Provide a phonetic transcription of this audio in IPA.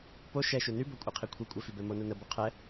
p o ʃ ɛ ʃ u n y b o kʷʼ ɛ qʰ i kʷʰ i kʷʼ ɛ f y b ɛ m o n u n ə b y qʰ ɛ

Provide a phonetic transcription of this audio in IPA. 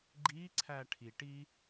ɡ͡ǃ i ǀʰ æ ʈʰ i ʈ i

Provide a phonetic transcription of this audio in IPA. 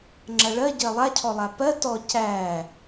ŋ͡ǁ ɐ ɭ ɜ ɟ ɜ lˠ a cʰ ɔ lˠ a p ɜ t ɔ c æ

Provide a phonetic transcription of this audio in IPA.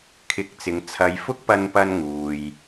kʰ ɪ˨˥ k̚ t͡s ɪ˨ ŋ t͡sʰ ɐ˨˧ j f ʊ˥ k̚ p ɐ˧ n p ɐ˧ n ŋ uː˨ j

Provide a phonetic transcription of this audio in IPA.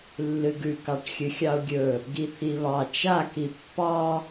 lː ɨ ɡ ʉ k ɑ ʈ xʲ ɨ xʲ ɑ ʊ̯ ɡʲ ɵ | ɡ i t̪ʰ i β ɑ t͡ʃ a k i pː ɑ

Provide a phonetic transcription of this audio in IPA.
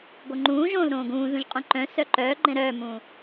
ɡʷ œ ŋ͡ǃ ũː ʒ õː l ɾ õː ɡ ũː z ũ ʒ qʼ œ̃ ǃ œ̃ s œ ǃ œː ɡ͡ǃ ɛ̃ ɾ œː m ũː

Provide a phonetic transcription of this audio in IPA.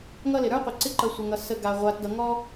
ŋ ʌ˥ l ɪ˩ ɾ ə˞˥ qʷ ʌ˩ ǀ ɪ˦ ǃ ʌ˨ sʷ ə˨ ŋ ʌ˨ s ə˨ ɡ a˨ ʁʷ a˨ t d ʌ˨ ŋ ɔ˥

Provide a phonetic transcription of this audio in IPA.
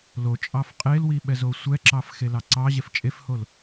l o t͡ʃʼ ɑ f qʼ e l w i ɓ ɛ z o sʷ ɛ ǁ ɑ f x e l ɑ ǀ ɑ ʑ ɛ f t͡ʃʼ e f h o l

